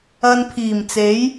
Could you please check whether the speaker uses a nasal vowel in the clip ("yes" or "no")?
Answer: no